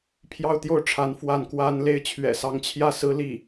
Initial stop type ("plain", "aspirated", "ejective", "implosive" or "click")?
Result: aspirated